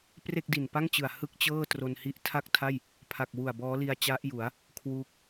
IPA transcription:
pre˥˩k̚di˨˩n pa˥˩ŋt͡ɕɯ˨˩a̯ hɯ˥˩k̚t͡ɕɤː˥˩ tro˧nhi˦˥ʔ tʰa˥˩k̚tʰa˥˩j | pʰa˨˩k̚wu˨˩a̯ bɔː˦˥li˧a̯t͡ɕa˦˥ʔju˩˦a̯ | kʰwuː˦˥k̚

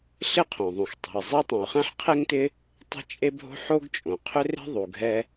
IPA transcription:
ɬɪ˥qʰõ˩ðˤũ˩x tˤe̤˩i̯zˤɪ˥u̯ tˤɛ̃˩u̯χɛ̃˥ħqʰe˥ŋtɪ˥ | tˤe̤˥t͡ʃʼe˥bʱo̤˥ ħo˥ɡt͡ʃʼõ˩ qʰʏ˥re̤˥ ðˤu˩ɡʱɛ˥

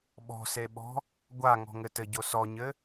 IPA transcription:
ɓɔ̤seɓɔ̤ | ɡʷa ŋɔ̤ŋɘtɘɟo sɔɲɘ

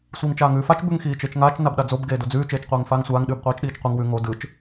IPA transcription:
sʷiːŋt͡ʃaːŋʉːfat͡ʃ bʉŋxiːt͡ʃet͡ʃŋaːt͡ʃ nabɗad͡zob ɡeːdod͡zʉː t͡ʃeːt͡ʃqʷeːŋfaːŋsʷaːŋ ɗʉːbqʷiːt͡ʃɗiːt͡ʃqʷiŋ wʉ ŋo dɯt͡ʃ

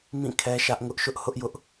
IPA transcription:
mĩ˦˨kʰɛ˦ʃä˦ʔŋʊ˦ʔ ʃʊ˦ʔhʊ˦ʔjʊ˦ʔ

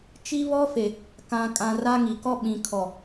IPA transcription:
t͡ʃi˦ βɔ˦fe˨ | kã˨ kʼã˨ ra˦ŋi˨ kɔ˦ɓĩ˨ kʰɔ˨

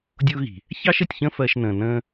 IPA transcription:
dʲʊː˦ɣi̤˨ | çɑ˦ʃ ə˨tʲçə̃˦ fɜ˧ʃnə̃ː˨ nə̃ː˦

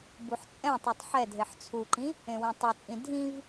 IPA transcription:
buħt͡sʼɛ̃tˤetˤ ħɛ dʱeħt͡sʰuǃĩ | ẽwĩtˤɛt͡sʼĩ dʱĩv

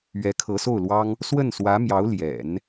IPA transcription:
ɥɛ˧˥kʰɤ˧˥so˥˩ʊ̯lwɑ˥ŋ | swə˥˩nswä˧˥mjɑ˧˥ʊ̯ ljɛ̰˨˩˦n

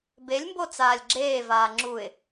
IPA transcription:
belʲmbo t͡saːlʲɡ͡ǁeːvaː ŋ͡ǁuɪ̯

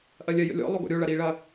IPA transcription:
ʔɐlʲɜjə̰lʲɔ̰ lˠoɡɔ̰ɾʲo ɭɐɾiːɭɐ

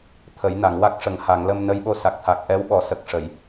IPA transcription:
t̪ʰə˨˩˦jna˨˩˨ŋwa˦˥k̚ʂə˨˩ŋ ha˨˩˨ŋlə˧m nə˧˥jɓo˧˥sa˨˩k̚ t̪ʰa˨˩k̚ʔɛ˧˥wɓɔ˨˩˦ sə˨˩k̚ʂə˨˩˨j

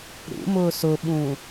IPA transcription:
ɾṵmʊ sʊɓũ

